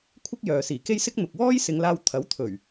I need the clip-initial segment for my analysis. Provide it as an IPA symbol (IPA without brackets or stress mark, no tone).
kʷʰ